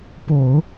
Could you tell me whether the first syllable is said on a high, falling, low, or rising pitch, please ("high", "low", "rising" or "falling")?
low